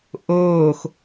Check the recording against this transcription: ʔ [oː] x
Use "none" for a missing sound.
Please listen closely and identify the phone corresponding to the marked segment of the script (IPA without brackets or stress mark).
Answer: oː